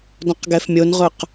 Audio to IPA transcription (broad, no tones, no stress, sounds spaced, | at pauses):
d ɔ̃ q ɡ ɛ f mʲ o n ʁ ʊ q